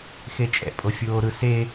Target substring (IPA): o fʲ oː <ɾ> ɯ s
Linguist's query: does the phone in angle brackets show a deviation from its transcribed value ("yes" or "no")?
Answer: no